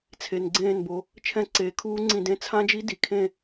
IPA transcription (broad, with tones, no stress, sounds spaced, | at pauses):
t͡sʰ e˨ n ɡ͡ǀ ẽː˦˨ n b o˨ | t͡ʃʰ ɛ̃˦˨ ǀ eː˨ kʰ uː˦˥ ŋ͡ǀ ĩ˦˨ d ẽ˦˥ t͡sʰ ã˦˥ d͡ʒ i˦˥ d i˨ kʰ ẽ˦˨